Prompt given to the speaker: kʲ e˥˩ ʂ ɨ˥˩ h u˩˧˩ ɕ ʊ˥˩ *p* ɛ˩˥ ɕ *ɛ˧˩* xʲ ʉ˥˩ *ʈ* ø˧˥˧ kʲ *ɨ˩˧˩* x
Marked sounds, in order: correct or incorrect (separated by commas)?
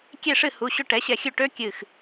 incorrect, correct, correct, incorrect